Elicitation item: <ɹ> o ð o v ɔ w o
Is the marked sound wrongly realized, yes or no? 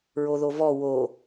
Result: no